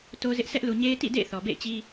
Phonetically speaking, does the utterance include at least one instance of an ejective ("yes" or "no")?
no